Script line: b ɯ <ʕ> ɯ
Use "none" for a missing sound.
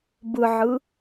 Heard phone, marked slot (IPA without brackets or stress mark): ʕ